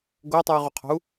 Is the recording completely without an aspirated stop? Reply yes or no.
no